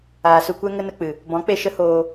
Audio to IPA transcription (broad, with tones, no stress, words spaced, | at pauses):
aː˨su˧kʷɛ˦ ŋə˦nə˧k͡pɨ˨ | bɔ̃˨˦k͡pe˧ ʃə˦hoː˧